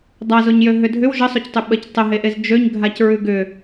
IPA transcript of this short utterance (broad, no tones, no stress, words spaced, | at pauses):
dˤazoɲjø ɦʏdʱʏw ʒəsˤoctˤʏ ɓəc tˤəɦeʔez d͡ʒøɲ ɡʱacɹʉɡʏ